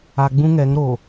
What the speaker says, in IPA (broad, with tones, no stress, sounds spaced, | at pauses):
a˨ ɡ͡b ũ˦ ŋ ɛ˨˦ ŋ ɾ o˨